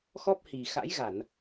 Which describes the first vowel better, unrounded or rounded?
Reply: rounded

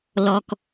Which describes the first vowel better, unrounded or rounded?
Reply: rounded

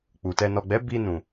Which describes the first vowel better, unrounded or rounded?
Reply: rounded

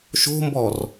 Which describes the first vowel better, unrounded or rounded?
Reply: rounded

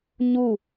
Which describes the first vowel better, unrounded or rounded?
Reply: rounded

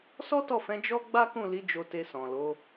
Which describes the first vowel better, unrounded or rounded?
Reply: rounded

